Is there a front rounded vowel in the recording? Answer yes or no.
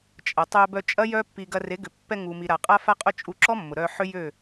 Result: yes